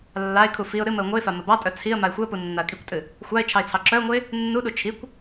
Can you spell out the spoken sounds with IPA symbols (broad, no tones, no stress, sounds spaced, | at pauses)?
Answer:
lː a ɪ̯ kʰ u f i ʊ̯ ɾ ɨ m ə ʊ̯ ŋʷ ɨ ɪ̯ f a m ə b ɑ tʼ œ t͡sʰ i ə̯ m a ɪ̯ xʷ ɨ ə̯ p u nː a ə̯ kʼ i kʷ tʼ ɨ | xʷ a ɪ̯ t͡ʃʰ ɑ ɪ̯ t͡sʰ ɑ ǁ œ ʊ̯ ŋʷ ɨ ɪ̯ | nː u ɗ u t͡ʃʰ i kʷ